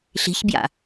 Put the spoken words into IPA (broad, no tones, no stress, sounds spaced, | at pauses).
ɬ i̤ ç b j a̰